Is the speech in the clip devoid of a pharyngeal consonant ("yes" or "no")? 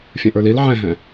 no